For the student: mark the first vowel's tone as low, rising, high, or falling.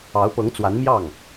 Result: rising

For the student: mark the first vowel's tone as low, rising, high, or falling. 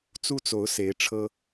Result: high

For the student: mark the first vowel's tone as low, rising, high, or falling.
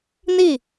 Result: falling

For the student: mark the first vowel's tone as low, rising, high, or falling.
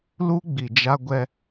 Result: high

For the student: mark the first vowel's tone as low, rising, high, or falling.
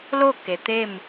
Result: falling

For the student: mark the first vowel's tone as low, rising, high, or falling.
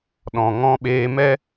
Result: low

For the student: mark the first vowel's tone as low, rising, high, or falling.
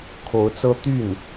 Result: rising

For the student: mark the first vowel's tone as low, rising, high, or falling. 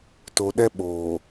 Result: low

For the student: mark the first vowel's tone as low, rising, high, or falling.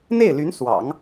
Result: falling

